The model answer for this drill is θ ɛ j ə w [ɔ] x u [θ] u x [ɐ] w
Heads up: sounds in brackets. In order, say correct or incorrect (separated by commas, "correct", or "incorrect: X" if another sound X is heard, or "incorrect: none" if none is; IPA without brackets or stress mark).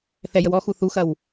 correct, correct, correct